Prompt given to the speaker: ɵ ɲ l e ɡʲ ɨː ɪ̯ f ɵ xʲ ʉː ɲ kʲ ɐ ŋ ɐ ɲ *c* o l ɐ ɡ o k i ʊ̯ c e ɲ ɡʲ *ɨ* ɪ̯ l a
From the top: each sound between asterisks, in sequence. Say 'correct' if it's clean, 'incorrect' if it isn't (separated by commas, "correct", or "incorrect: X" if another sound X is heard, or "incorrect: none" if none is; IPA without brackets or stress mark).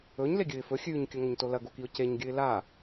incorrect: t, correct